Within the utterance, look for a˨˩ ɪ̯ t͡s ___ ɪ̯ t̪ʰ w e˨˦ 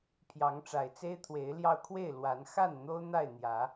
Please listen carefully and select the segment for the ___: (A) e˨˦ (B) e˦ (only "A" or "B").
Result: B